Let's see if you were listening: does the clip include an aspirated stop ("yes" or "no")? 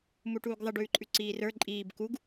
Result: no